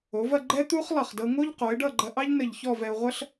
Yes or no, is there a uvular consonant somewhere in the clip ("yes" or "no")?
yes